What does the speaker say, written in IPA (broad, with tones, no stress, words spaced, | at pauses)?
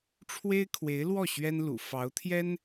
ʈ͡ʂʰwe˥ɪ̯kʰwe˧˥ɪ̯lwɔ˥˩ ɕɥɛ˥nlṵ˨˩ fɑ˧˥ʊ̯t̪ʰjɛ˥n